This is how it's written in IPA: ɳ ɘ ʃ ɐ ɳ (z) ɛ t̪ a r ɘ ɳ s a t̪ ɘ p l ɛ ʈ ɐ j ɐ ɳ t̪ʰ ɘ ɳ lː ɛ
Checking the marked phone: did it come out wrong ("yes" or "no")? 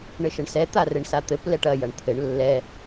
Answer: yes